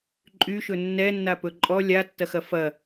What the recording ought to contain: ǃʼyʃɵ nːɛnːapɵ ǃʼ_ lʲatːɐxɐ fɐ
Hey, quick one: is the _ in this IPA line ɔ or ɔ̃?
ɔ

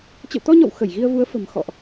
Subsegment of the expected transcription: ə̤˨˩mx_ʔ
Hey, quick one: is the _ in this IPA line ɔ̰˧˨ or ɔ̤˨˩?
ɔ̰˧˨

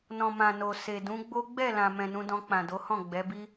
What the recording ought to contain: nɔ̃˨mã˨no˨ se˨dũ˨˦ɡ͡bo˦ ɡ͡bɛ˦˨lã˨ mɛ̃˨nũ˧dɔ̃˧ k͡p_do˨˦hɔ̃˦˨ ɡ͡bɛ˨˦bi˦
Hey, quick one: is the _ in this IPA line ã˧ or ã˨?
ã˨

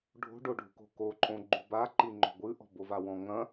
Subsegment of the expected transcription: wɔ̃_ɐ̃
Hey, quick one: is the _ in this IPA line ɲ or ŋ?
ŋ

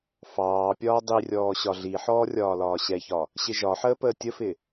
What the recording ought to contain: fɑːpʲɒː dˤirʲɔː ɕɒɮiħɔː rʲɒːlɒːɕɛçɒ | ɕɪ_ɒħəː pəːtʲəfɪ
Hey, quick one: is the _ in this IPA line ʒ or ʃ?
ʒ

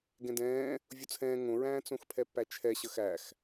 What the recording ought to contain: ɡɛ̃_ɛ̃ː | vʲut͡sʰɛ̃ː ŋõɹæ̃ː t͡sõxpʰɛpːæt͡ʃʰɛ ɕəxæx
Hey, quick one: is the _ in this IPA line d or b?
d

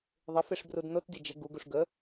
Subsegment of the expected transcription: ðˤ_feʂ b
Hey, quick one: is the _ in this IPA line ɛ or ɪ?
ɪ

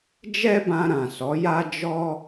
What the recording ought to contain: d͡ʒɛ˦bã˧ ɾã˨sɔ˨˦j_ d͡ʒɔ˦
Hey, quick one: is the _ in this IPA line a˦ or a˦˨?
a˦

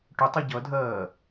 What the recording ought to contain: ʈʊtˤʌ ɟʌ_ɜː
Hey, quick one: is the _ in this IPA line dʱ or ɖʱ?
dʱ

